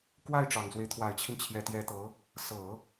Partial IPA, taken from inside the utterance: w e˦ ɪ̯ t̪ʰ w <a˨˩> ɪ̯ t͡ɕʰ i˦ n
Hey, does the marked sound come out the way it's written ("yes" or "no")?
yes